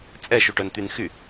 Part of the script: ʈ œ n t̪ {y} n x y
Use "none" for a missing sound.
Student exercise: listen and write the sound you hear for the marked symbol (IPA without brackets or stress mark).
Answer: y